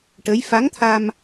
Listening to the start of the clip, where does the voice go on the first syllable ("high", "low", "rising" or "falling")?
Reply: rising